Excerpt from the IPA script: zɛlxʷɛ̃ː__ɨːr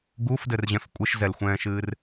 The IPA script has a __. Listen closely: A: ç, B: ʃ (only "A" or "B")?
B